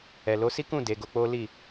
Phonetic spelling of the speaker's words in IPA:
ɛ˨ l o˨˦ s i˦ k ũ˦˨ d e˨˦ ɡ o˧ k͡p o˦ l i˦˨

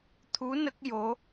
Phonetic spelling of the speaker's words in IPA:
t̪ʰ u˧˥ n ə˦˥ k̚ j o˧˥

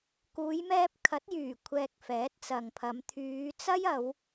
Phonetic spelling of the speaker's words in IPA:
k uː˨˧ j m ɛː˧ p̚ kʰ ɐ˨˥ t̚ j yː˨˩ kʷʰ ɛː˨ k̚ f ɛː˨˥ t̚ t͡s ɐ˨ ŋ pʰ ɐ˨˧ m t̪ʰ yː˨˧ t͡s ɐ˥ j ɐ˨˧ w

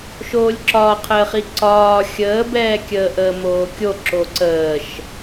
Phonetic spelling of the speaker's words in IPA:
ʃ oː lʲ ǁ ɒː qʰ əː χ i ǀ ɒː xʲ əː b ɛː kʲ əː ʔ əː m oː kʲ o ǁ o ǀ əː ʃ

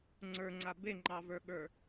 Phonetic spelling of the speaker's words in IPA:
ŋ͡ǀ ə˞ ŋ͡ǀ a b e ŋ͡ǃ ɑ v ə˞ ɠ ə˞

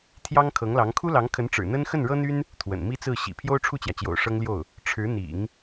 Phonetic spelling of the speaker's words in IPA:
t̪ʰ j ɑ˥ ŋ kʰ ɤ˧˥ ŋ l ɑ˧˥ ŋ kʰ u˥ l ɑ˧˥ ŋ kʰ ə˧˥ n ʈ͡ʂ ɻ̩˨˩ n̪ ə˥ n x ə˥˩ n ɻ ɤ˥ n̪ y˥ n | t̪ʰ w ə̰˨˩ n m i˥ t͡s ɹ̩˥˩ ɕ ḭ˨˩ pʰ j o˥ ʊ̯ ʈ͡ʂʰ u˥˩ t͡ɕ j ä˩ t͡ɕ j o̰˨˩ ʊ̯ ʂ ɤ˥ ŋ l j o˥˩ ʊ̯ | ʈ͡ʂʰ ɻ̩˧˥ n̪ ḭ˨˩˦ ŋ

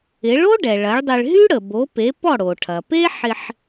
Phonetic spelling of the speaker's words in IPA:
ɪ˩˥ ɭ o˥ ɖ ɛ˩ ɭ ɐ˩˥ ɭ dˤ ɪ˧ ɭ ɦ y˥ ɽ ə˩ b o˩˥ p e˩˥ p ɔ˥˩ ɽ o˩ ʈʰ ɐ˩ p e˥ ħ ɪ˧ ħ

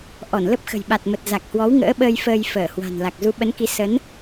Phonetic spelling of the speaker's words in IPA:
ʔ ɔ˧˩ n l ə˦˥ p̚ x ə̤˨˩ j ɓ a˨˩ t̚ m ə˨˩ t̚ z a˨˩ k̚ h w ɔ˨˦ w ŋ ə̰ː˧˥ ɓ əː˧ j f əː˧ j f əː˧˩ h w a̤˨˩ n l a˨˩ k̚ z u˨˦ ɓ ə˨˦ n k i˨˦ s ə˨˦ n

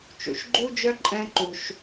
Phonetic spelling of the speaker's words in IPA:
t͡ʃ ṵ˨ ʃ ɡ͡ǃ u˦ d͡ʒ œ˦ ǃʼ ɛ̃˦ ǃ u˧ ʃ

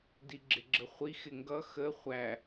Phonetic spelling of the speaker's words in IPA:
d i ɡ͡ǁ ɪ ɡ͡ǁ ə χʷ i x ɪ ŋ ɡ ʌ x ə χʷ æ

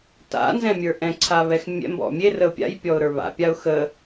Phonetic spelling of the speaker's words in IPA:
t a̰ n z ɛ̃ mʲ ə˞ ʔ ɛ̃ ǀʰ a β ɛ x mʲ ɛ̰ m b ɔ̰ mʲ e r ə ʊ̯ pʲ a̰ j pʲ ɔ ʊ̯ ɾ ə˞ β a̰ pʲ a ʊ̯ x ə

